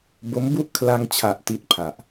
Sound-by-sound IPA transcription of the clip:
bo˦˥mbu˥˩ʔ kʰla˧ŋt͡ɕʰa˨˩ʔ ti˦˥t̚pʰa˨˩ʔ

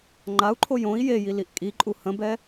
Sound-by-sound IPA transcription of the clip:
ŋ͡ǃau̯ǃʰoj õi̯ jeji liʔkʼiǃʼu hə̃bɛ

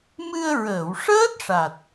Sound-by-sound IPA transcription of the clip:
mɨ˧ə̯ ɹəː˨˩˨wʂəː˦˥t̚ʂa˨˩t̚

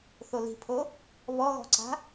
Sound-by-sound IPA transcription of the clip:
θoli̤pʰo | βɔɣɔ̤ǀa̤

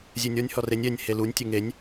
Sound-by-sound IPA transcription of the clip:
zʲenʲɔnʲ hɔrenʲ ɛnʲ helunʲ tʲeŋenʲ

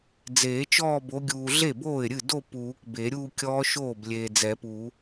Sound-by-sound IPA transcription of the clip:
d͡zeː˨˩˦t͡ʃɔː˥˧bo˨˦ɡʲuː˨ ɮe˥˩boː˥˩ɪ̯ɾʲɨ˥˩do˥˧ puː˨˩˦kbe˨˩˦ ɾʲuː˥˧kʲɔː˦˥ʃoː˥˩b lʲeː˨d͡zɛ˨˩˦pu˨˩˦

